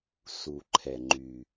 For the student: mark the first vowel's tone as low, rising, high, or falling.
low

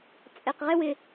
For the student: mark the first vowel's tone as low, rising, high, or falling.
low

